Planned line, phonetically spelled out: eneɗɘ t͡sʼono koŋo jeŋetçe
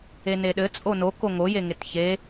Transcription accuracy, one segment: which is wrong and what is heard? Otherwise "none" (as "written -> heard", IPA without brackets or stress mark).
none